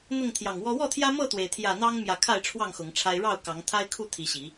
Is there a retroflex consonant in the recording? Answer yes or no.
yes